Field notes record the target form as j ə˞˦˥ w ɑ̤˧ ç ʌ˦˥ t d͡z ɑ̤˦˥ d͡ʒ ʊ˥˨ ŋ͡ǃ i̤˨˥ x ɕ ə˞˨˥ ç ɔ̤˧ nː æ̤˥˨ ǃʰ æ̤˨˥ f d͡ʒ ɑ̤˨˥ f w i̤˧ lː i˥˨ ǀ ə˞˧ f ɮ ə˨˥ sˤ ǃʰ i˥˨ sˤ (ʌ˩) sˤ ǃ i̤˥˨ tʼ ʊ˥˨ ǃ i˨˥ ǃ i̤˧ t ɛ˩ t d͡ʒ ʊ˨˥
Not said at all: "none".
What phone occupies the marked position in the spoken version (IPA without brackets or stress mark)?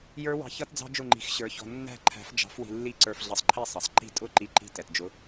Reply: ʌ˩